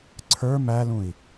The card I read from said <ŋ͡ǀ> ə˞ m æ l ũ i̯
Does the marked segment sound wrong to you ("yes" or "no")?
yes